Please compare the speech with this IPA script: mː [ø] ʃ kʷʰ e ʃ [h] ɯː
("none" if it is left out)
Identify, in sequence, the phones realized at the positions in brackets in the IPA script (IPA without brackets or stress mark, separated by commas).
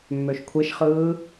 ø, χ